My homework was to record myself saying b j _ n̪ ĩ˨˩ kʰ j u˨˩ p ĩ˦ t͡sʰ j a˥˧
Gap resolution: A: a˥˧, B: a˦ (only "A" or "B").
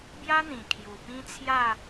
B